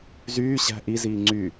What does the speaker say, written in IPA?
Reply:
z yː ɕ æ̤ ʔ i z iː ŋ͡ǀ y

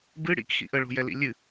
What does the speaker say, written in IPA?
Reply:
b ɨ ɽ ḭ k x ḭ ʔ ə ɭ o̤ j ɛ l ḭ lʲ ɨ

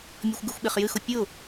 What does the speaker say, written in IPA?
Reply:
mʲ ɔ xʷ ɡ ɨ xʷ ɓ e χ j ɨ x ʊ pʲ ʊ

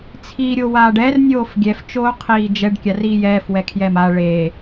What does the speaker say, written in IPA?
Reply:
t͡sʰ iː ɾʲ o w aː ɖ ɛ r nʲ oː f ɡʲ ɛ f t͡ʃ oː qʰ iː d͡ʒ ɛ ɖ kʲ a r iː j ɛː f w ɛ kʰ j ɛ m a ɭ e

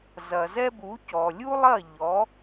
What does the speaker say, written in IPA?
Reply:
z ɐ˩ z ɛ˥ b u˩˥ c ɔ˩ lʲ u˥ lˠ ɐ˥˩ ʎ ɔ˩˥

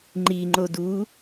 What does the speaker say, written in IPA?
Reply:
ŋ͡ǃ i ŋ͡ǃ o d u

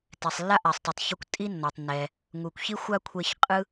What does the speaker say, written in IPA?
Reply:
t ɛ˩ sˤ lː a˥ ʔ a˩ sˤ tˤ ɯ˩ tˤ ç u˧ kʷ tʼ i˥ nː ɔ˩ tˤ nː ɛ˩ | ŋ u˩ kʷ ç i˥ xʷ a˥ kʷʰ e˧ ç qʼ ɯ˥

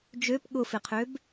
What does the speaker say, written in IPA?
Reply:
d͡ʒ ø p ɠ ʊ f ɪ qʰ ø b

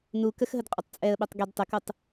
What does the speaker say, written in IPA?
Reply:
n u k ə x ɦ ə d qʼ ɵ tˤ t͡sʼ ɛ ə̯ ɓ ɛ tˤ ɡ ɛ d tˤ ə k u tˤ

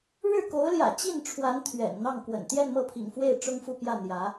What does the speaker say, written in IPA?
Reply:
ɻ ɻ̩˥˩ k o˧˥ ʊ̯ l j ä̰˨˩ t͡ɕ i˥˩ n ʈ͡ʂʰ w a˧˥ n t̪ʰ ɥ ɛ̰˨˩ n n̪ ɑ˥˩ ŋ k w ə̰˨˩ n t̪ j ɛ˥˧ n m ɤ˥˩ pʰ ḭ˨˩ ŋ f w e˥˩ ɪ̯ ʈ͡ʂ ʊ˥ ŋ f u˥˧ p j ä˥˩ n̪ j ä˧˥

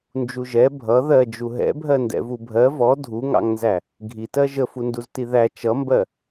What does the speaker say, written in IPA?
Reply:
n d͡ʒ u ʒ ɛ bʱ ʌ ð ɜ d͡ʒ u ɦ ɛ̰ bʱ ɜ n d ɛ̰ v u bʱ ɜ v ɔ dʱ u ŋ ɑ̰ ŋ n z æ | ɡʱ i t ɜ ʒ ə f u n d u z t i ð æ t͡ʃ ʌ m b ɜ

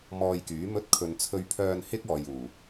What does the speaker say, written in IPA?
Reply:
m ɔː˧ j k yː˨˥ m ɵ˥ t̚ kʰ ɵ˧ n t͡sʰ ɵ˧ ɥ pʰ œː˧ n h ɪ˥ k̚ ɔː˨ j uː˨˩

